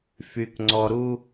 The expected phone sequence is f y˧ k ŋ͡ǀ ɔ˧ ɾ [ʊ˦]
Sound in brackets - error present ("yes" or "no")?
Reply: yes